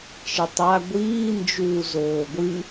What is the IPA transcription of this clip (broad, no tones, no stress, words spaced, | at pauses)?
t͡ʃɘtˤa ɡʷiː nd͡ʒuːzoːɡʷɨ